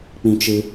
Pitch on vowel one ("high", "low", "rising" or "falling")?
high